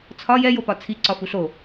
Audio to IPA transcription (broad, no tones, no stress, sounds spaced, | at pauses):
t͡sʰ ɒ j ɛ j o p ɒ t͡sʰ i ǀ ɒ f u ɬ o